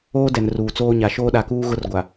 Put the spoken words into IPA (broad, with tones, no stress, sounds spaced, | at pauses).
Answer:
oː˦ d ɛ˨ n r uː˨ t͡s oː˦ ɲ a˨ ʃ oː˦ ɗ a˨ k uː˦ ɣ ʊ˦ r ɡʷ a˨